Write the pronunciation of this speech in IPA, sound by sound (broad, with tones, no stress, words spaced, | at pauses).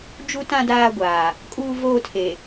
d͡ʒu˦tã˦ daː˦ɡʷaː˨ | kʼuː˦ voː˦tʰe˨